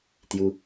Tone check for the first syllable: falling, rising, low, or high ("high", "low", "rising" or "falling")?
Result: high